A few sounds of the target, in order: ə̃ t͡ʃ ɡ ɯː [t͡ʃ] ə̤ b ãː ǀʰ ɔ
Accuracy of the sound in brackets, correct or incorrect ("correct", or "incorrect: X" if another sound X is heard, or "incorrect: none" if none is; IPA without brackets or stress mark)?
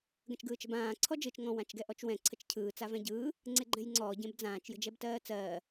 correct